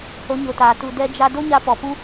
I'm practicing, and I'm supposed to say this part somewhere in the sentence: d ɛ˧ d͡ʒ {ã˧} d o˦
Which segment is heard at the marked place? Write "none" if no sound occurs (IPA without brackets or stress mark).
a˧